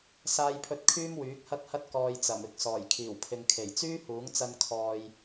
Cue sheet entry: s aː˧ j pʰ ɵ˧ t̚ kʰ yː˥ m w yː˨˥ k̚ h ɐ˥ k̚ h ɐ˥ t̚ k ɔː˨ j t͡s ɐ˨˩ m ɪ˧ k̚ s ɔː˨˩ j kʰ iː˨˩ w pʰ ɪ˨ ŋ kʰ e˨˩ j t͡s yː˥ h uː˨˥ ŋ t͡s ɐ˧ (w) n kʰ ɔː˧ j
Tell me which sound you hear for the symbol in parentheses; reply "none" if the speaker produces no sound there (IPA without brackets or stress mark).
none